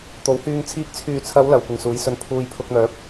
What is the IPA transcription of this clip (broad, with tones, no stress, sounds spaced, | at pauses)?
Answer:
t̪ o˨˥ w h yː˧ ŋ t͡sʰ iː˨˥ k̚ t͡sʰ yː˨ t͡sʰ ɐ˨˧ w l ɐ˨ w kʷ ɪ˨ ŋ s uː˨˥ j s ɵ˧ n pʰ uː˧ j pʰ ʊ˧ k̚ n̪ œː˨˥ p̚